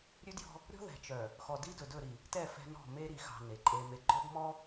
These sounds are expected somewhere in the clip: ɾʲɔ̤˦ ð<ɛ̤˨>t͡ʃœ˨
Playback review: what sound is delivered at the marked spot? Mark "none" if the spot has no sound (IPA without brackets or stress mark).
ɛ̤˨